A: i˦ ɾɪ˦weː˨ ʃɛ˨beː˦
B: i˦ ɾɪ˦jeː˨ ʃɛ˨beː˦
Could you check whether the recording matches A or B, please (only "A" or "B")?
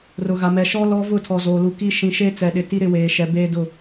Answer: A